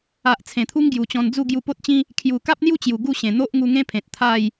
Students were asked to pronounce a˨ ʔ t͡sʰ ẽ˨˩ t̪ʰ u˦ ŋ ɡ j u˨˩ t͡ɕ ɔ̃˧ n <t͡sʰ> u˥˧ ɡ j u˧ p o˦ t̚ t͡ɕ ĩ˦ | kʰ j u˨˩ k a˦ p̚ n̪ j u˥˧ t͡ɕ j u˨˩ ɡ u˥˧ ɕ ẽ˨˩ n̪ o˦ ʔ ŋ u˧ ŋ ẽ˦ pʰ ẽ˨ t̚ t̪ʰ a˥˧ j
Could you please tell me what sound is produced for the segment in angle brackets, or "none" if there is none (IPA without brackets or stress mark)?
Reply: d͡z